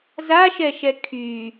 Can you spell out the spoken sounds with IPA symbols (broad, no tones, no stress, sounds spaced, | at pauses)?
z a ʃ ɛ ʃ ɛ kʰ y